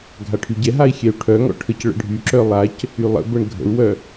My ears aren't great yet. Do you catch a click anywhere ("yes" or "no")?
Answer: yes